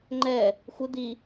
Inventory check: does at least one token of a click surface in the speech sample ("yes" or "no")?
yes